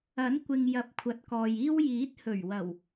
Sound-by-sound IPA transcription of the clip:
ɐ˨˥ n kʷ ɪ˨ ŋ j ɐ˨˥ p̚ kʷʰ ɐ˨ t̚ k ɔː˨ j iː˥ w j iː˨˥ t̚ h ɵ˨˩ ɥ w ɐ˨˩ w

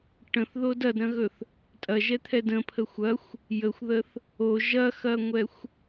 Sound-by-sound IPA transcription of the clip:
ʈ ə̃ θ ð o d ɐ d ɾ ɐ̃ ɣ ɵ θ | tʼ ɐ ʒ ɛ t̪ʰ ɛ d ə̃ pʰ ə xʷ ɐ xʷ | j ə xʷ ð ə θ | o ʒ ɐ x ɐ ŋʷ ɛ xʷ

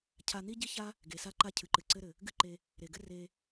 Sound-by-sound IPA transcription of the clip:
cʰ a˧ n̪ i˥ ɟ i˥ ç a˥ | ɡ e˩ s a˥ ǃ a˥ cʰ ɨ˩ ǃ ɨ˩ ǀ ɘ˥ ɾ ɘ˩ | ɡ ɨ˥ ǃ e˧ | ɾ e˩ ɡ ɘ˥ r e˧

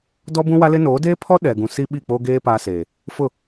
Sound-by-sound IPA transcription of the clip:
d ɔ˦ b ũ˦ w a˦ l ɪ˦ n oː˨˦ d eː˦ pʰ ɔ˦ ɗ ɛ˨ ɡ ũ˨ s i˦ ɓ i˦˨ k͡p oː˦ ɡ eː˦ p a˦ s eː˨ | f ʊ˦˨

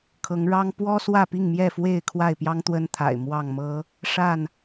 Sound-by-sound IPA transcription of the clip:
kʰ ɤ˨˦ ŋ ɻ ɑ˦ ŋ p w ɔ˦ s w ä˥˨ p i˥˨ ŋ m j ɛ˥˨ f w e˥˨ ɪ̯ kʰ w a˥˨ ɪ̯ p j ɑ˦ ŋ t̪ w ə˦ n t̪ʰ a̰˨˩ ɪ̯ m w ɑ˥˨ ŋ m ɤ˦ | ʂ a˥˨ n

